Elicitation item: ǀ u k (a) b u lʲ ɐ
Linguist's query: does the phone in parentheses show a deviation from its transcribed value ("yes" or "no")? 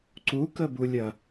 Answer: yes